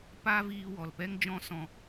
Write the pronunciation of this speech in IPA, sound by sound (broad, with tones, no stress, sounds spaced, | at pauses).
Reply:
p a˦ v iː˧ w ɔ˨ l p ɛ˦ ŋ d͡ʒ ɔ̃˦ s ɔ̃˧